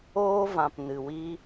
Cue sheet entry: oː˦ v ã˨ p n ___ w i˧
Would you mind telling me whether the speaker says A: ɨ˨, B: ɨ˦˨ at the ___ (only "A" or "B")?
A